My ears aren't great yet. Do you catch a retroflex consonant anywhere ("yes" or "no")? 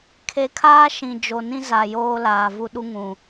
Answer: no